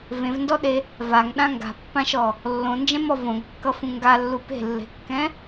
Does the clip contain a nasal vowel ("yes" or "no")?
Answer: yes